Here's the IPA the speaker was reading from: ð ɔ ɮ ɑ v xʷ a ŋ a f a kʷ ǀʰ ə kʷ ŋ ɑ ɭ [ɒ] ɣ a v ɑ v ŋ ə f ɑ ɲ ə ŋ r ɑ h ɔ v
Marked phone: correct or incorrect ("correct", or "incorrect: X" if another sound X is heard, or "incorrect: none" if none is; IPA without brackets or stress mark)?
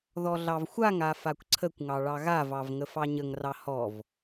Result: incorrect: ɑ